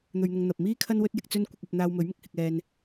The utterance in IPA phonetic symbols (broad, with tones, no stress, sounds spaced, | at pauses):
n̪ ɵ˨ ɥ n̪ ʊ˨ ŋ n̪ ɐ˨ p̚ m iː˥ kʰ ɐ˥ n w ɵ˥ t̚ j ɪ˧ k̚ t͡s ɵ˥ n kʷ ɪ˧ k̚ ɐ˧ p̚ n̪ aː˧ w m ɵ˨˥ ɥ m ɪ˨ k̚ h ɪ˧ k̚ ɛː˧ n